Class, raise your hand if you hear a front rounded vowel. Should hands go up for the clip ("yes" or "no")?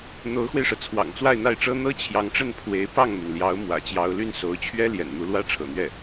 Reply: yes